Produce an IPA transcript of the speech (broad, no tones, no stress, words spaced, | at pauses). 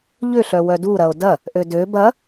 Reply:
ʎʏɬœ wœduɾɐo̯ dɐ | ʔødø bɐ